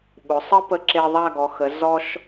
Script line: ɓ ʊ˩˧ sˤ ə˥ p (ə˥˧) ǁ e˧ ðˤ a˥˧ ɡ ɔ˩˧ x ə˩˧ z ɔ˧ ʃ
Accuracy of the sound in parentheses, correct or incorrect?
incorrect